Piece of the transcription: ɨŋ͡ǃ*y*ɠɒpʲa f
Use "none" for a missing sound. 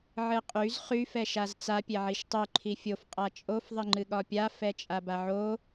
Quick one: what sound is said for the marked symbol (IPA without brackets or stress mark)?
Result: ɨ